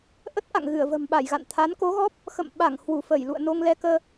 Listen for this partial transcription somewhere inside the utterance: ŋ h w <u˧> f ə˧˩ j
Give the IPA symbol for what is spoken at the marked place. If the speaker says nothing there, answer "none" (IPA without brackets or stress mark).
u˧˩